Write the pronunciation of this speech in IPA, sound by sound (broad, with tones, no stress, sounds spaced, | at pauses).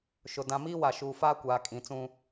ʃ ʊ˨ d ã˨ m iː˦ w a˨ ʃ uː˨ f aː˦ kʷ aː˨ kʼ ĩ˨ t͡s ũ˦